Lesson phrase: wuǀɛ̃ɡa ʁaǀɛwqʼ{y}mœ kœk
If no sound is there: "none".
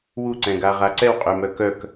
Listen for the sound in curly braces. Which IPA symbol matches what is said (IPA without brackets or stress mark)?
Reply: y